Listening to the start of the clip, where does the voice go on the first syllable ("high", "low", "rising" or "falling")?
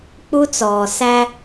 high